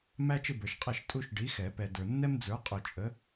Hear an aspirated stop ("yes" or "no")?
no